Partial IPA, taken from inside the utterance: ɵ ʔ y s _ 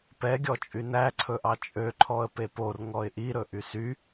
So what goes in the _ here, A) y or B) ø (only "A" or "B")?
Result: A